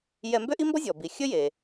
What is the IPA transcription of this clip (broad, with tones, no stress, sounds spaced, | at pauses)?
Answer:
j ɛ˧ m b ø˥ ʔ i˥ m b ɔ˥ zʲ ɔ˩ b i˩ xʲ ɵ˥ j e˩